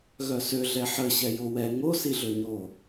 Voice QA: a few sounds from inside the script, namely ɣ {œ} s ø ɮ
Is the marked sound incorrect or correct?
correct